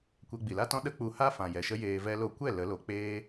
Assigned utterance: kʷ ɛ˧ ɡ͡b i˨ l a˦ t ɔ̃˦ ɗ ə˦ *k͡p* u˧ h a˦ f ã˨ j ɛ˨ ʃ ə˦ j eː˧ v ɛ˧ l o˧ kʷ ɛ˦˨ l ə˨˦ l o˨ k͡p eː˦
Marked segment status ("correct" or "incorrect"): correct